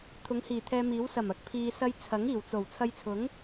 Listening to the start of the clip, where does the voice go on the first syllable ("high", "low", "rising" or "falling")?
rising